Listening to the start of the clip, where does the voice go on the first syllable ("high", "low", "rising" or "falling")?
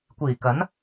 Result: low